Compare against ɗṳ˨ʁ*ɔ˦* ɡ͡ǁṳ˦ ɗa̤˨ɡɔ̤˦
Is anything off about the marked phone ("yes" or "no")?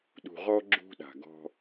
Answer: no